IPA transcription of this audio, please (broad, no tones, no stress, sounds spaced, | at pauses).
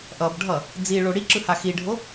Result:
ʔ ʌ b ɖʱ ʌ | d͡z i ɭ o ɽ i ǁ ɯ h a x i ɖʱ o